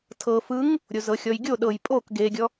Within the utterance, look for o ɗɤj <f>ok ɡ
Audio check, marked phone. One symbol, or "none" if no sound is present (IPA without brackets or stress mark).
pʼ